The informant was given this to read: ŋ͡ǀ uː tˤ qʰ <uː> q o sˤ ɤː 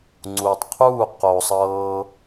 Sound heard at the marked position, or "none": uː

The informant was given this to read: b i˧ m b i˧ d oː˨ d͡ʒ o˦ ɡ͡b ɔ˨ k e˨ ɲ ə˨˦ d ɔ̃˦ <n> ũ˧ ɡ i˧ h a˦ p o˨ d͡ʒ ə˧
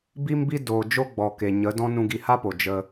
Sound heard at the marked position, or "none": n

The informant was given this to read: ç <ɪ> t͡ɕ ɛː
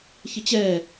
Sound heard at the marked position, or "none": ɪ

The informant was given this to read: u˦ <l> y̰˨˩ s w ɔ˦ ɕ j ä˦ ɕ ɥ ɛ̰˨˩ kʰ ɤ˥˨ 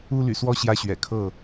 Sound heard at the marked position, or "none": l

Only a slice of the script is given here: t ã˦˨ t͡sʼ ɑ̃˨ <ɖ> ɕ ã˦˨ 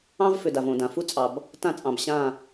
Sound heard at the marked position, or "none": b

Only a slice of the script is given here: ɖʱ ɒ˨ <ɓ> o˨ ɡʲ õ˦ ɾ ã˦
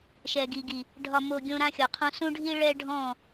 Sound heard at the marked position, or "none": m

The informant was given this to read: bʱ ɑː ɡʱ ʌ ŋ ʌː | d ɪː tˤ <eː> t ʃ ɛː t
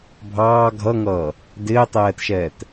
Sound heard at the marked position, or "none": ɛː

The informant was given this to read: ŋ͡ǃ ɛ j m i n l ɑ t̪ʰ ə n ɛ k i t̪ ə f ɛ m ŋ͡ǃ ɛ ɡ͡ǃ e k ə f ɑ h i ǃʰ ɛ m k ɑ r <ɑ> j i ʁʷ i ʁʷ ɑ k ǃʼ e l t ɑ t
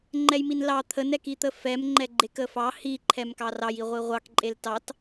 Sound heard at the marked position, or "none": ɑ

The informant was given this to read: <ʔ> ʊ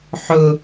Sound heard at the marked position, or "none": ħ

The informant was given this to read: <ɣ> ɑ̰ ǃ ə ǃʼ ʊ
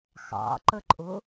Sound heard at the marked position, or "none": x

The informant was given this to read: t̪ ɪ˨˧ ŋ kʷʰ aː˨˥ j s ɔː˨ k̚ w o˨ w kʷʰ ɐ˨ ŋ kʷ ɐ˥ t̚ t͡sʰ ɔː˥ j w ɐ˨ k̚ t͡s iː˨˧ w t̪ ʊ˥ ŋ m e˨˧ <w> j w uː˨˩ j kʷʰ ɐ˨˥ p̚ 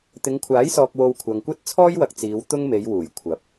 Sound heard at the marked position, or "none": none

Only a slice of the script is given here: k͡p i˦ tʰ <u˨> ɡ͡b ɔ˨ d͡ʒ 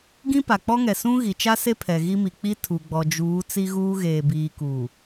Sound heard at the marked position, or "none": u˨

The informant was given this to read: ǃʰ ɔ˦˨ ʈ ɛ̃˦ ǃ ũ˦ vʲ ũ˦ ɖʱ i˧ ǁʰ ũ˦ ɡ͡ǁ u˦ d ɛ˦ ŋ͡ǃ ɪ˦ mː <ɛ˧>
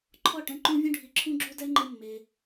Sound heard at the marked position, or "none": e˧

